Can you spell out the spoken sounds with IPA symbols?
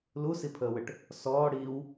l u s i pʰ əː w ə ʈ | s ɔː ɽ iː w

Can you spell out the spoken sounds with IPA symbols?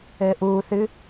ɘː ʔ uː θ ɨ

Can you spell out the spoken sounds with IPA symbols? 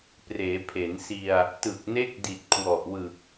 p r eː˩˦ pʰ e˩˦ n s i˧ a̯ | t ɯ˨˩ k̚ n e˦˥ k̚ d i˨˩ t̚ kʰ w ɔ˨˩ ʔ w ɯ˨˩ k̚

